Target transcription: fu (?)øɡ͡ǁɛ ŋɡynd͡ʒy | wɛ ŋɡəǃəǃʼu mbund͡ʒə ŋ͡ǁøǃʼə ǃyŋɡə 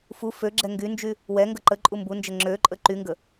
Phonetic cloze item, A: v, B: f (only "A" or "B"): B